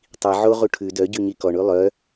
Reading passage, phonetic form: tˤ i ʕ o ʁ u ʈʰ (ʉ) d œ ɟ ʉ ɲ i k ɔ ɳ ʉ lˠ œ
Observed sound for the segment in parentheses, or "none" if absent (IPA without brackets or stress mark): ʉ